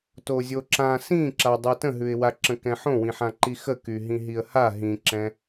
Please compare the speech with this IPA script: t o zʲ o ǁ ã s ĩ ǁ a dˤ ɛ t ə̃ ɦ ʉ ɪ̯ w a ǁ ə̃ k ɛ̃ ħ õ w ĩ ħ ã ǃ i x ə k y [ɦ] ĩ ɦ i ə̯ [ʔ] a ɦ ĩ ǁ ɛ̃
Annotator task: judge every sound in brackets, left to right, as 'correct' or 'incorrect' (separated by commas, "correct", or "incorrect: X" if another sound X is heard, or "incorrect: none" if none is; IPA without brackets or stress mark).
correct, incorrect: h